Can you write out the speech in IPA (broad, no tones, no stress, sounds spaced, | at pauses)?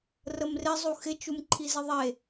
r ə m r ɪ zˤ u x ɪ t͡ʃ u m ǃʰ i z ɪ ðˤ e